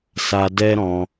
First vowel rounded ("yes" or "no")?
no